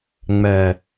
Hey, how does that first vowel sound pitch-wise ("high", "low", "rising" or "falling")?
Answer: low